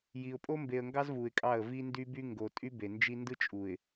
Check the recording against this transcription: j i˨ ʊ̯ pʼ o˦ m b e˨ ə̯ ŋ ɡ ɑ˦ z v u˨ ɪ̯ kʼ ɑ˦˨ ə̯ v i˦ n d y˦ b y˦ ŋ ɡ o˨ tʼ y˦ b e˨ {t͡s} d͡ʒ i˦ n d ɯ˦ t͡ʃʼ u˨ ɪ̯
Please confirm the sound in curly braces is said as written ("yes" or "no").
no